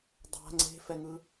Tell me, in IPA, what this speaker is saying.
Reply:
dˤa̤ ŋ͡ǀe̤fɛŋɯ

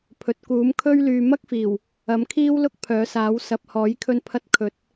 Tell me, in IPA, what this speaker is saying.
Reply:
pʰɵ˨t̚kuː˨˥m kʰɵ˥ɥlyː˧ mɐ˥k̚fiː˨˩w | ɐ˨˥mkʰiː˥wlʊ˥k̚ pʰœː˨˥saː˨˥w sɐ˨p̚hɔː˨˥j kʰɵ˥npʰɐ˥t̚ kʰɵ˨˥t̚

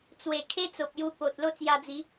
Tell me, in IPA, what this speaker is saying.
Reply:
t͡swe˨˩kʰe˦ t͡so˨p̚ju˧ po˨t̚ lo˥˧t͡sja˧d͡zi˨˦

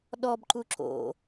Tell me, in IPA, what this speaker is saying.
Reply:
ɗɔbǃu ǁo̰

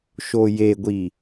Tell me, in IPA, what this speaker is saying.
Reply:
ʃojeɡʷi

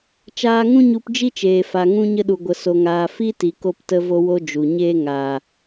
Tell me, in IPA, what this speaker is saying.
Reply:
t͡ʃaː˧ŋũ˦ɲu˧p d͡ʒi˦t͡ʃeː˨fa˨ ŋũ˧ɲə˧ɗu˨ɡʷə˨ so˨ŋaː˨ fi˦ti˨ ko˧ptə˧vo˧wo˧ d͡ʒu˨ɲeː˦ ŋaː˨

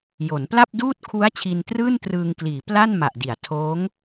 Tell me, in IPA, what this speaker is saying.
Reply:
jo˩˦npla˥˩p̚duː˥˩t̚ kʰu˦˥a̯ t͡ɕʰi˧ntrɯː˥˩ntrɯː˧ŋkliː˩˦ pla˥˩nma˨˩ʔ di˩˦a̯ tʰoː˦˥ŋ

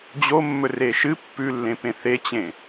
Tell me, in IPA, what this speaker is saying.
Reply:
d͡ʑo mːɵreʃɨ pːʉlːẽ pẽθet͡ɕẽ

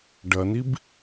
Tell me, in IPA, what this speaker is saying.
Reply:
ɖɐnib

